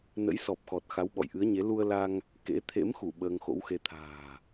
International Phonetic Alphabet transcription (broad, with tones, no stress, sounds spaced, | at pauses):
n ə̰˧˥ j s ɔ˨˩ p̚ x ɔ˨˩ t̚ x a˨˦ w ɓ ɔ̰˧˨ j ʔ ɨ˨˦ ə̯ ɲ e˨˦ l u˧ ə̯ l a˧ ŋ | k ḛ˧˥ t̪ʰ ḛ˧˥ m x u˧˩ ɓ əː˧ ŋ x o̰˧˥ w x e˧ t̪ʰ a̤ː˨˩